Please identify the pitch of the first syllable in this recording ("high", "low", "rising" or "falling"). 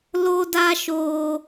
high